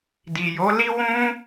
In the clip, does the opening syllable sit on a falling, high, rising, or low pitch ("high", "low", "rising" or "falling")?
low